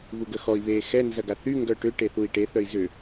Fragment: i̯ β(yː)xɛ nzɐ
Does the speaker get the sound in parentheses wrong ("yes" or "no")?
yes